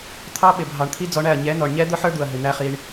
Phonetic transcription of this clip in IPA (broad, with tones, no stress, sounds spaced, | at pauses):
t̪ʰ ɑ˦ ɓ ɪ˨ bʱ ɑ˨ ɳ t̪ʰ i˦ d͡z ɔ˧ ɳ æ˦˨ ɐ̯ ɲ ɛ˨˦ n ɔ˨ ɳ ɲ ɛ˦ d̪ ʊ˦ ħ ə˞˦ d̪ u˨ ɐ̯ ɦ ɪ˨ n̪ æ˦ χ i˧ ɳ